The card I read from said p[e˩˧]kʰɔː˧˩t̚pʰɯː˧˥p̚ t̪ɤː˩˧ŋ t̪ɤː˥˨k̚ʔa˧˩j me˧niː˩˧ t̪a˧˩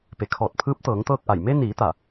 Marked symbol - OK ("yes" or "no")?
yes